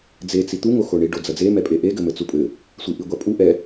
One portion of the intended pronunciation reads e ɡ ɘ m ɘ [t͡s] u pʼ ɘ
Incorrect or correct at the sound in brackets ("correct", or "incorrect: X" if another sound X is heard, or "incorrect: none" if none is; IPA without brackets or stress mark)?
correct